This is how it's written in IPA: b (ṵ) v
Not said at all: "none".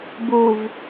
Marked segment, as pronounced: u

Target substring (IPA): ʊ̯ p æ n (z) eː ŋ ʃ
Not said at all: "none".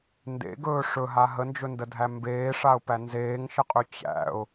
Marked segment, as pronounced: z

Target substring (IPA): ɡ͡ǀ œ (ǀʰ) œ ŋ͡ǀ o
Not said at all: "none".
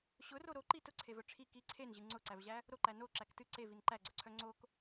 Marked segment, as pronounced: ǀʰ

